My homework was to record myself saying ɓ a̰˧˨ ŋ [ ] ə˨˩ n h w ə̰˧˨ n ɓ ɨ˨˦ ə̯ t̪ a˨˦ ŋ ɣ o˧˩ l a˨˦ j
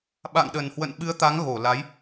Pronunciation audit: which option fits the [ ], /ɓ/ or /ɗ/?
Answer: ɗ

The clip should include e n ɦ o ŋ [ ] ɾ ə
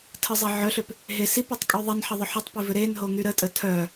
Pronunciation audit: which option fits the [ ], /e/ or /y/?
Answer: y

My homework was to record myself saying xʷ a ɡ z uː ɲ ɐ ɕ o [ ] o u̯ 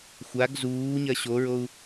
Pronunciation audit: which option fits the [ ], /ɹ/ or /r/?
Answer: ɹ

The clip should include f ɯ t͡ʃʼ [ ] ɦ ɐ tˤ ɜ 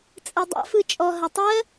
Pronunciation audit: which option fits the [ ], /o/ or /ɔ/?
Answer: ɔ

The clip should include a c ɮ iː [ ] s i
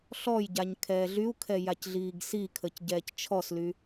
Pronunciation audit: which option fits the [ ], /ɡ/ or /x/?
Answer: ɡ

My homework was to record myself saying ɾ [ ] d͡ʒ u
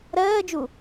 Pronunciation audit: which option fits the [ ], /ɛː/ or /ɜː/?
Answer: ɜː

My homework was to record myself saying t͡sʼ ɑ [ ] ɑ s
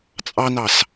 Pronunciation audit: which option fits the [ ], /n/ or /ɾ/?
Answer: n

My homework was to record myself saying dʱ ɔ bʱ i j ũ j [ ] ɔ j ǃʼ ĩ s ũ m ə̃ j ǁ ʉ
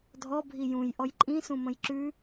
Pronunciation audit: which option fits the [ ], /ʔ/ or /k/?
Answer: ʔ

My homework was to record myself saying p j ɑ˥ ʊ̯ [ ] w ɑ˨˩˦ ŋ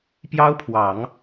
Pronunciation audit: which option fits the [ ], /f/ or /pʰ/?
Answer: pʰ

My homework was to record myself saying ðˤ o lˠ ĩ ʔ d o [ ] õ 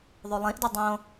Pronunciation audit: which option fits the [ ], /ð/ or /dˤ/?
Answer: dˤ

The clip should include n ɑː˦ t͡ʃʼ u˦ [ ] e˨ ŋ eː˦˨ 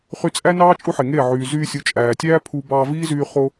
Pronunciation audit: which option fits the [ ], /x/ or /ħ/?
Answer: ħ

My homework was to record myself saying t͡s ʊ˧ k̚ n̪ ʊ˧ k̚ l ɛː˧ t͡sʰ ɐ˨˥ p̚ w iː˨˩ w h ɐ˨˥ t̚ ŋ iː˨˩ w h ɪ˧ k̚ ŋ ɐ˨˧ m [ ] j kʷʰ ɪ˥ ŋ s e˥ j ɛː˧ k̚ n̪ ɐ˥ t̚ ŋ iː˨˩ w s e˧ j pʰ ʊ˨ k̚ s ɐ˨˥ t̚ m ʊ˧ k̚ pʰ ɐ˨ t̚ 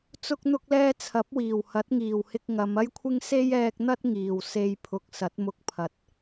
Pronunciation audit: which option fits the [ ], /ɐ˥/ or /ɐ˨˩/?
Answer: ɐ˥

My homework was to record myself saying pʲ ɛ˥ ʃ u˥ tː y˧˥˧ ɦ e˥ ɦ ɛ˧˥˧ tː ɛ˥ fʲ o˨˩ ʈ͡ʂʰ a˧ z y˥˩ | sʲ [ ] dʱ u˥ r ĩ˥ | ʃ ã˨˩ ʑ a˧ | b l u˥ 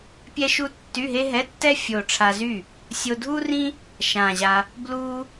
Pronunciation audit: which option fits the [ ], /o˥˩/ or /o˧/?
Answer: o˧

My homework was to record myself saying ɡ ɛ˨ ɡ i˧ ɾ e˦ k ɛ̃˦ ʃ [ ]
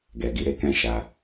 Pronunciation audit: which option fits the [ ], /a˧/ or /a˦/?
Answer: a˧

